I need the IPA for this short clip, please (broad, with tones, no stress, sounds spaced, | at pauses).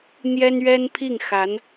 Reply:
n̪ j ɛ˥ n ɥ ɛ˥ n pʰ i˥˩ ŋ x a˧˥ n